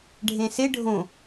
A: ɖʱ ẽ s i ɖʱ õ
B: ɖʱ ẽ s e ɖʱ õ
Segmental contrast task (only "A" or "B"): B